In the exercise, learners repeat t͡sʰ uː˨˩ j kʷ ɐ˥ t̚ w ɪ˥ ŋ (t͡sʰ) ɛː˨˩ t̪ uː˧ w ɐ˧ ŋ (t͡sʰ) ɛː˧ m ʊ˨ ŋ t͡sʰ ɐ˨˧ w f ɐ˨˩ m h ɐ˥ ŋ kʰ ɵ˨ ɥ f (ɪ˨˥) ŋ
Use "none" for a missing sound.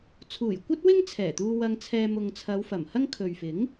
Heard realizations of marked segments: t͡sʰ, t͡sʰ, ɪ˨˥

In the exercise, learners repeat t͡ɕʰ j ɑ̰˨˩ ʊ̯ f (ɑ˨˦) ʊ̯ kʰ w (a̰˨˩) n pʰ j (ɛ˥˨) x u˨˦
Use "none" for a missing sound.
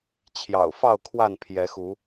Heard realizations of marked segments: ɑ˥˨, a˥˨, ɛ˨˦

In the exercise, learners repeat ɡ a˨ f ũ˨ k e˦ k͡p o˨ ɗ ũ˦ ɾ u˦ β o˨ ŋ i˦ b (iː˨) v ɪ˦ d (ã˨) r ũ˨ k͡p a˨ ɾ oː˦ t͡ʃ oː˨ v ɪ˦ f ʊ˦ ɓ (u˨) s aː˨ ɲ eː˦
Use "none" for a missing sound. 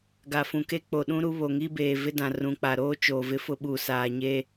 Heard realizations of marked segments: eː˨, ã˨, u˨

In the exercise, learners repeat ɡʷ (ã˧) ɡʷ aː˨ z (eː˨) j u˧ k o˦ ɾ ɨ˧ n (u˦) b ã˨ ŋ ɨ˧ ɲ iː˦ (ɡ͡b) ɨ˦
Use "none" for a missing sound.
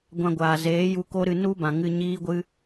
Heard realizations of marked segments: ã˧, eː˨˦, u˦, ɡʷ

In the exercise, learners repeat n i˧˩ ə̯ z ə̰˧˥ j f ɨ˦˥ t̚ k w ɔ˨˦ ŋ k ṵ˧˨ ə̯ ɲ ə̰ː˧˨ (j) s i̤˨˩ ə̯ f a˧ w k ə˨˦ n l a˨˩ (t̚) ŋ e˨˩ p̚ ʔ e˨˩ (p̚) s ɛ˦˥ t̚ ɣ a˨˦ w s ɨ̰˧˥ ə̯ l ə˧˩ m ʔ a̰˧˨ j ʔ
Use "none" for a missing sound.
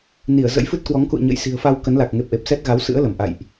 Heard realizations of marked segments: j, k̚, p̚

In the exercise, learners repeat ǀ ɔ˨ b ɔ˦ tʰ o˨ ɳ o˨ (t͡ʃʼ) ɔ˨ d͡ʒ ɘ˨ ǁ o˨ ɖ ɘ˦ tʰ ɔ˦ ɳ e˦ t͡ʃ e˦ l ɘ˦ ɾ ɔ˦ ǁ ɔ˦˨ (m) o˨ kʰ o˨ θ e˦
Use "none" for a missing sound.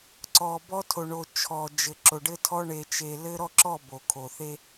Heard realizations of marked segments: t͡ʃʰ, b

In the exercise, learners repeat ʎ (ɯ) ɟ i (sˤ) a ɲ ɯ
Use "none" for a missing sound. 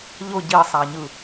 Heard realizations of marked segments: ʊ, sˤ

